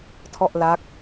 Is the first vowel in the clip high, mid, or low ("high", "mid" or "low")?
mid